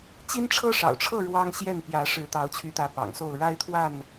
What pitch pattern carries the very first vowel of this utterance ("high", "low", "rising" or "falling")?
high